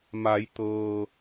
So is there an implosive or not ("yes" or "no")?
no